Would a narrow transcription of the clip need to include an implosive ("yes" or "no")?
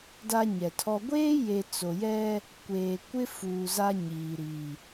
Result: no